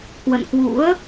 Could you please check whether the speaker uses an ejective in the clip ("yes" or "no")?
no